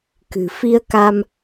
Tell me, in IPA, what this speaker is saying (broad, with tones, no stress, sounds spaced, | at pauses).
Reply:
k ɨ̤˨˩ f i˧ ə̯ k a˧ m